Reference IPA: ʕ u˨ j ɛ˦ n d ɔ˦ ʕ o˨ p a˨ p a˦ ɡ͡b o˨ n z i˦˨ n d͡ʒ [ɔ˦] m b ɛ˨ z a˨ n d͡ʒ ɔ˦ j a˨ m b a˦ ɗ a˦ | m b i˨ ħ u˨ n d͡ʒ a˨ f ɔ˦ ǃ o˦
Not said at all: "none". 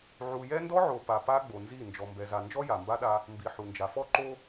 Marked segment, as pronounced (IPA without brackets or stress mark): ɔ˨